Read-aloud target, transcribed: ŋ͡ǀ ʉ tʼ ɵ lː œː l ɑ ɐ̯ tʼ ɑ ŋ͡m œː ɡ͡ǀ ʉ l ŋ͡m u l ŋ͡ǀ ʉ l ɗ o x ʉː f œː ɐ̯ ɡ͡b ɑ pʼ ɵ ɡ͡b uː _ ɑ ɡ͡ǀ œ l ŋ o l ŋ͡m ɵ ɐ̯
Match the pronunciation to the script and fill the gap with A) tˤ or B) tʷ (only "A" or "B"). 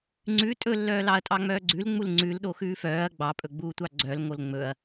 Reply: B